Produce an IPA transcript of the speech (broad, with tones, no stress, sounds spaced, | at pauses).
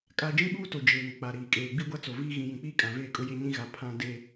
kʼ a˦ d͡ʒ ĩ˦ ɓ uː˦ t o˨ d͡ʒ eː˨ ŋ ʊ˨ k͡p a˨ ɾ iː˨ kʼ eː˨ ɡ͡b i˦ ɡʷ a˦ t͡s o˨ v iː˦ ɣ ĩ˨ j ĩ˨ k͡p iː˦ kʼ ã˨ v eː˦˨ kʼ ʊ˦ j e˦ ɲ ĩ˦ ɣ a˨ pʰ ã˦ d e˦